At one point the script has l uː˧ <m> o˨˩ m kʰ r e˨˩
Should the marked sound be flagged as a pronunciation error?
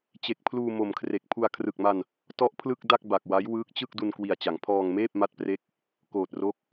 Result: no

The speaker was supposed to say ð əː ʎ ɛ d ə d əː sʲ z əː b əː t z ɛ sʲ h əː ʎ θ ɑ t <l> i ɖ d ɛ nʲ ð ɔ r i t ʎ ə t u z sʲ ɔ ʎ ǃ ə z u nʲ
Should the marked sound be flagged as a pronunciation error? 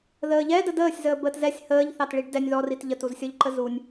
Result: yes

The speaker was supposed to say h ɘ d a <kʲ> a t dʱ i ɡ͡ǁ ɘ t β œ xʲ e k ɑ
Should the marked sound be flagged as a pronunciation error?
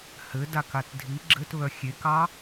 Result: yes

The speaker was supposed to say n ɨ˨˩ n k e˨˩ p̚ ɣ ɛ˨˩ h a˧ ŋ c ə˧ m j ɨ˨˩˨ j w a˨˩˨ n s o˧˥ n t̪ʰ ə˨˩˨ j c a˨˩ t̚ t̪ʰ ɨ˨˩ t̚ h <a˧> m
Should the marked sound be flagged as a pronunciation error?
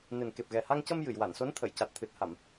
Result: yes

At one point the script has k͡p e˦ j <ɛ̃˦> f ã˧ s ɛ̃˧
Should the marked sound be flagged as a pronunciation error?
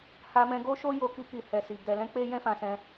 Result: no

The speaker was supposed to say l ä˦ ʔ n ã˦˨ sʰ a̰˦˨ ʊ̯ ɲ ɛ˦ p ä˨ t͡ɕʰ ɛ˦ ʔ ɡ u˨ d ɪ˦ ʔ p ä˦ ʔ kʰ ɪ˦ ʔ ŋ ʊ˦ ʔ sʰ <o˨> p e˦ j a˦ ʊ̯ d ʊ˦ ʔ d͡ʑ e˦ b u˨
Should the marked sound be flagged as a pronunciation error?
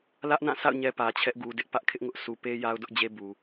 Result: yes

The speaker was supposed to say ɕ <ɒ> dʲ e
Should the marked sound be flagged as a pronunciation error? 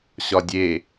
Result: no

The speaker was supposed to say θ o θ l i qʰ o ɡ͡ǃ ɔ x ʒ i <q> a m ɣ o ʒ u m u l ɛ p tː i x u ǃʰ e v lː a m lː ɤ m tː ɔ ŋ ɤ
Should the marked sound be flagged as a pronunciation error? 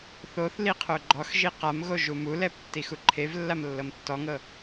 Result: no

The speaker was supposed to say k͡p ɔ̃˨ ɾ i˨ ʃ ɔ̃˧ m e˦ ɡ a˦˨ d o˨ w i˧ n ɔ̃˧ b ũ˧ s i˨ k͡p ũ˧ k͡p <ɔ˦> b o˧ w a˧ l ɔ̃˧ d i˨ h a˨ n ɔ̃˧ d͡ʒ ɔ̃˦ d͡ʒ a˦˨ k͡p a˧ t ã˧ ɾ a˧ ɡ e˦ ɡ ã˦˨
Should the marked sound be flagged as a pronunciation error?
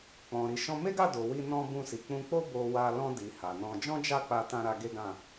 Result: yes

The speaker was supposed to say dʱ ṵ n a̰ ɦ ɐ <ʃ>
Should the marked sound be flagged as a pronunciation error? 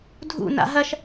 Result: no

